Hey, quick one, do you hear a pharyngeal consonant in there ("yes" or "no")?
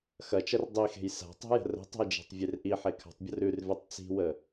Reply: yes